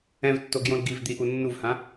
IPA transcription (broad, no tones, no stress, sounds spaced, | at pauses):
ɛ̃ v tː o ɡ j õ l ɡ i v d̪ i ʔ u nː u v h ã